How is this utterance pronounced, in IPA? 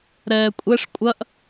ɾɛːkʷʼɛʂ kʷʼɐʔ

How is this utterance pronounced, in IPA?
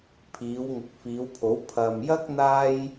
pʰiː˨˧w ŋʊ˨k̚fiː˨˧wpʰo˨˥w pʰɐ˨mjɐ˥k̚ n̪aː˥j

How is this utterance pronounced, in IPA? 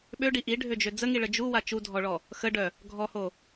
ɓøɖi ʔiɖʱød͡ʒø d͡zəŋiɭə d͡ʒuwa t͡ʃudʱɔɭɔ | xəɖœ | ɡʱɔho

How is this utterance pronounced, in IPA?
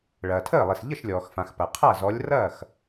ɭɐː˩tʰəː˥˩lˠi˩s ʎə˥˩ʃlʲɔː˩xfã˩x pɐ˩qʰa˥˩zɔ˨˦lʲ rɐː˥˩x

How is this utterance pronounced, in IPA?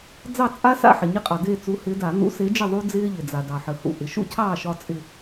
d͡zɑ˦˨t͡sʼa˦sa̰˦˨ ħɪ˩ɲɪ˦qʼɑ˩ de˦˨t͡su˨˦hɪ˨˦da˧˩˧ n̪ṵ˨˦se˨˦d͡ʒɪ˦˨ ðˤu˦d͡zɪː˦ʎɪ˩ d͡za˩dɑ˩ħə˩hṵ˩ ʔɪ˩ʃṵ˦cʰɑː˦˨ ʃɒ˦t͡sʼɪ˦˨

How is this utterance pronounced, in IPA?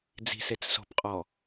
d͡zi̤set͡s so̤pqʼɔ

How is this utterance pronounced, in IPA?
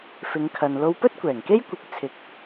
fɪ˨˧ŋkʰɐ˨n lo˧wpɵ˥t̚kʷɛː˨˩ŋke˥j kʷɪ˧k̚t͡sʰɪ˨k̚

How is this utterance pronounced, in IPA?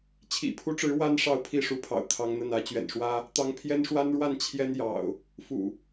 t͡ɕʰḭ˨˩pʰu˦ʈ͡ʂɻ̩˨˦ wa˦n ʂɑ˥˨ʊ̯pʰi˥˨ʂu˨˦pʰɑ̰˨˩ʊ̯ t̪ʰɑ˦ŋn̪ə˥˨nä˨˦ t͡ɕɥɛ̰˨˩nʂwä˦ | t̪ɑ˦ŋ pʰjɛ˦nʂwa˦nɻwa˥˨n t͡ɕʰjɛ˦n jɑ̰˨˩ʊ̯ | fṵ˨˩

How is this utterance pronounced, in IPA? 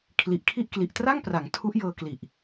kʰli˨˩ʔkʰi˥˩ʔ kli˨˩ʔtra˥˩ŋpra˩˦ŋ tʰu˦˥ʔjɤː˧kli˨˩ʔ

